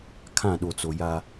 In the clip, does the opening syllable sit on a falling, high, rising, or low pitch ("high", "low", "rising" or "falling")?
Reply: falling